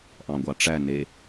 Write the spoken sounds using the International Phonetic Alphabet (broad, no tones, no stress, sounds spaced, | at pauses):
ʔ ɑ̃ ɡʷ ɑ ʈ͡ʂ æ n e